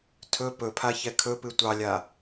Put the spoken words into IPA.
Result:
tʰ ɵ p ɵ pʰ a ç ɛ kʰ ɵ p ɨ tʷ ɑ lʲ a

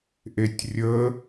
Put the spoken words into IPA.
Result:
ʔ e tʲ rʲ ə

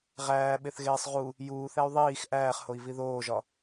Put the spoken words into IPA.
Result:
ʁ æː ɓ e θ ɣ eː sˤ ʁ u | j uː θ æ y̯ ðˤ iː x ʔ æː χ h o i̯ v i ð oː ʒ ɒ

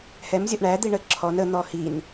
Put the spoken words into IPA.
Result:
h ɛ m zʲ ɔ ʔ ɳ æ d̪ i ɳ ə ǁʰ ɔ n ə n̪ ɔ h i n

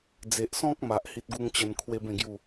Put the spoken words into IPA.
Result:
d͡z e˨ ʔ s ɔ̃˦ k̚ m a˨ ʔ h i˦ t̚ ɡ u˦ ŋ t͡ɕ ə˧ n kʰ w e˦ b ẽ˥˧ ɡ j u˥˧

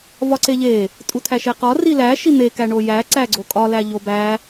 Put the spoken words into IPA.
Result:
v ɒ ǀ e ʎ e | tʼ u tʰ æ ʃ e q ɒ r i l æ ʃ i n̪ e k æ ɳ o j æ ǀ æ ɡ͡ǀ o kʼ ɒ l æ ʎ o b æ

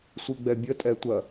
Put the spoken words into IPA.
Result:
sʷ i ɡ͡b ɛ bʲ ə tʼ ɛ tʷ ɐ

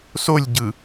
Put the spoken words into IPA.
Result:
s o lʲ ɟ ɯ

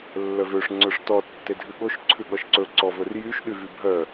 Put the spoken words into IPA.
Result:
lː œ v ø ʂ ŋ͡ǀ œ ʂ t ɔ tː e dʱ ʉ ɠ o ʃ ǀʰ ʉ ɠ ɔ ʃ ǀ ɵ ǀ ɔ v ɵ r j y ʃ ɗ y v y bʱ œ

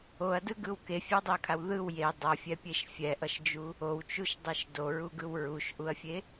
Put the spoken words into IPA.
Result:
o ɐ̯ d ɯ ɡ ɯ w k e fʲ ɛ w dˤ i ɐ̯ kʰ a w ð ɯ w j e dˤ ʌ fʲ ɛ pʲ e ʃ fʲ ɛ ʔ ʌ ʃ d͡ʒ u | o w t͡ʃ u ʃ dˤ e ʃ d o ɹ u ɡ ɯ w ɹ u ʃ ʔ u ɐ̯ fʲ e

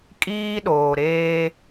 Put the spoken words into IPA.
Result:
kʼ iː˦ ɗ oː˨ ɾ eː˦

